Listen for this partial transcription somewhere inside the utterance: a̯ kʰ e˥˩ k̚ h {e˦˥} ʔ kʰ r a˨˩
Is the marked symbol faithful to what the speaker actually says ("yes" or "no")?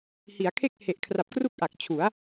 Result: no